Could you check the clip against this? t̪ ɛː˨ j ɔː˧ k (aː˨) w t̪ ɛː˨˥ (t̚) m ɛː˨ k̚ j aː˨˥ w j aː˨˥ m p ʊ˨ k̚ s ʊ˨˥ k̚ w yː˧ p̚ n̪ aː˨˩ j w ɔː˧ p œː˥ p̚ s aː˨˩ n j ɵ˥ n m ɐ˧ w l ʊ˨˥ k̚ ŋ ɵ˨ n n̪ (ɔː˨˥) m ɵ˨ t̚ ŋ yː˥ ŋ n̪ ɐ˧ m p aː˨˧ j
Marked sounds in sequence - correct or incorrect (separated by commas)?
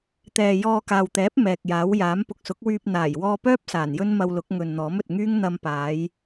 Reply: correct, incorrect, correct